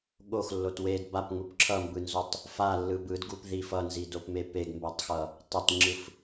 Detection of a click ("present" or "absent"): present